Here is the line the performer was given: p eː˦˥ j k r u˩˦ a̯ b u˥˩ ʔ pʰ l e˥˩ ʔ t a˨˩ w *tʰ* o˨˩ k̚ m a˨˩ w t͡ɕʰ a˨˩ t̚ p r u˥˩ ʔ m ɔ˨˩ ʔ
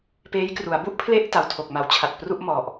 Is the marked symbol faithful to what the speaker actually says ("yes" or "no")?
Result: yes